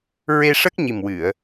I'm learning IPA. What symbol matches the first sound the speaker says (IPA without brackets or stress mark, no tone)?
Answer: ɹ